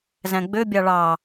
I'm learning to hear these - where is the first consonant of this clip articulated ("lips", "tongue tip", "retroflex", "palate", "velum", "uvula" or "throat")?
tongue tip